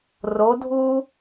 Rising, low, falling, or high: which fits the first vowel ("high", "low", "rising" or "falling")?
rising